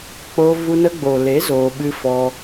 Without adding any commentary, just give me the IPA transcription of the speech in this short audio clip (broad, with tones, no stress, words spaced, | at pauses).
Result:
k͡po˧vu˧ nə˧ɡ͡bo˨le˨˦ zoː˧ɓɨ˦fɔ˦